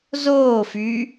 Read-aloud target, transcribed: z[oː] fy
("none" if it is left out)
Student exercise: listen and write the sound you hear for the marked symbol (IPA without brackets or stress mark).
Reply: oː